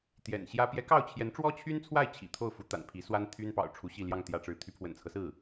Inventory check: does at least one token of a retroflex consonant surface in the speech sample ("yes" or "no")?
yes